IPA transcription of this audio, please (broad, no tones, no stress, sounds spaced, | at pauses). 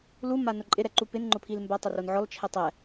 l u m a n ʊ ǃʼ ɪ ɾ ɛ ǃ u p ɪ n ŋ͡ǃ ʊ pʰ i l m b a tˤ ʊ r o n ʕ ɔ l t͡ʃʰ ɛ tˤ ɛ